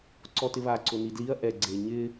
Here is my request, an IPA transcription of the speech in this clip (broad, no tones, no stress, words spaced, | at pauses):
ǀɔtɪβa ǀʊnidliɐ̯ ʔɛ ɡ͡ǀeɲɪ